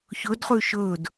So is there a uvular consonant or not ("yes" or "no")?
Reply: yes